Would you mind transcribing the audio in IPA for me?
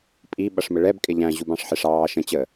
pʼi ɓʌʂməɭɛb kʼɪʎæ̃ ʑubɑ̃ʂħɪʂ ɑː ʃə̃ t͡ɕə

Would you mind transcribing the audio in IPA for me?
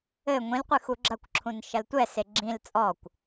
ɘ ŋʷĩlqʷɨ xuɡ͡ǁɐkʷǁʰũn ʃɐltʷɛse ɡ͡ǁĩl t͡sʼɔkʷ

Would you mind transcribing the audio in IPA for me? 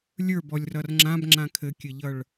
lʲə˞bɔlʲrʌr ŋ͡ǁãbŋ͡ǁã kʰɘkʲɘʎʌɭ

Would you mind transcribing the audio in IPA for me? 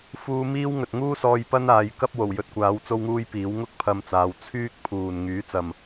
fuː˧ miː˥wŋɵ˨t̚ ŋuː˥sɔː˧j pɐ˥naː˨˧j kɐ˥p̚ wo˨˩wjɵ˧t̚kʷaː˨˥w t͡so˥wŋuː˥jpiː˨˥w ŋʊ˥k̚ pʰɐ˧mt͡saː˨˧w t͡sʰyː˥k̚pʰuː˨n ŋyː˨˥t͡sɐ˨m

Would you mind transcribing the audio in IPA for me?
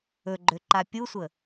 ɵɡ͡ǃøǃa pʲusʷə

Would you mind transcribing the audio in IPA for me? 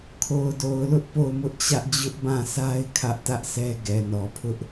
kʰo˨ʊ̯do˨ʊ̯lʊ˦ʔ po˦˨ʊ̯mʊ˦ʔt͡ɕä˦ʔ d͡ʑʊ˦ʔbã˦˨sa˦ɪ̯ kʰä˦ʔtä˦ʔsɛ˦ ɡɛ˨nɔ˨pʰʊ˦ʔ

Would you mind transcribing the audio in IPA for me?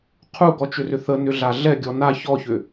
qʰuɡɔt͡ʃʏrʏ θənʏɮa ɮɛɡʲɔ na çɔçʏ

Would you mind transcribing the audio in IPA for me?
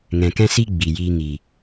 ŋɛ̃˨kɛ̃˦si˦ ɡ͡bi˨jiː˧ ŋi˨

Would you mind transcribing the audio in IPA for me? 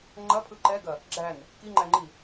ŋ͡ǃɐpʰɯ ǃɛɡɐ | ɡ͡ǁæn | kiŋ͡ǃæŋ͡ǃi

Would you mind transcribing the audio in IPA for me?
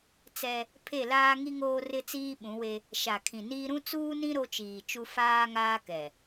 t͡sɛ˦ | pʰe˦˨laː˦ŋi˦ ŋoː˦rɪ˦t͡siː˦ɓũ˨˦ we˦ | ʃa˨kʰĩ˨niː˦ ɾũ˦t͡suː˦nĩ˦ ɾo˦t͡ʃiː˨t͡ʃu˦ faː˦ŋaː˦ kɛ˨

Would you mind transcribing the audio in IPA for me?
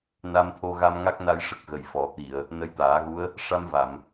na˧mt̪ʰo˧ɣa˧m ŋa˦˥k̚na˧jʂə˨˩k̚ ɣə˨˩jfɔ˨˩˦t̪i˨˩˨ə̯ | nə˧jt̪aː˨˩˦ɣu˧˥ə̯ | ʂa˧mva˨˩˨m

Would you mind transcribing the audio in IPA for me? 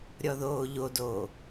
ɾʲɔðoːʎodoː

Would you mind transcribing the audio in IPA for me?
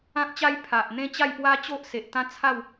ã˦k̚t͡ɕa˦j pʰa˨ʔ n̪ẽ˥˧t͡ɕa˥˧jpwa˦t͡ɕo˦ʔ se˨ʔ t̪ã˦t͡sʰa˥˧w

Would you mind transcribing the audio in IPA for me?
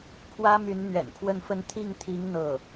pʰwä˥ my˧˥nn̪ɥɛ̰˨˩npʰwə˥˧nfə˥˧n t̪ʰi˥˩ŋt̪ʰi˧˥ŋ n̪ɤ˥˩

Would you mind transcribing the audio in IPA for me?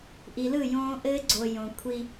ʔi˨lɯ˦˨ jõː˦ ʔɘː˦ɡ͡ǀo˨ jõ˨kʷʰi˦

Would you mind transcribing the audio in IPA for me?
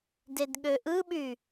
dedɠøʔɯɓy

